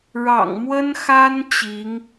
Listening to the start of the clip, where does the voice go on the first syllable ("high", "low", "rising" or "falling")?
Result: low